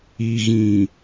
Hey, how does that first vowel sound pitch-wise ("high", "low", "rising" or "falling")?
low